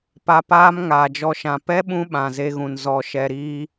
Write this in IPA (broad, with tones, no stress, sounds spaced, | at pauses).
p a˧ p aː˦ m ŋ aː˨ d͡ʒ ɔ˧ ʃ ã˨ p ɛ˦ ɓ ũ˧ ɓ ã˨ z e˦ ɣ ũ˨ n z ɔ˧ ʃ ɛ˧ ɾ iː˦